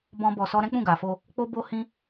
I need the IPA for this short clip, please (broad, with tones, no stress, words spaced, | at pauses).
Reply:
bɔ̃˦bɔ˧sɔ˦ ɾɛ̃˦k͡pũ˦˨ɡa˨fo˧ | k͡po˦bo˦ hĩ˦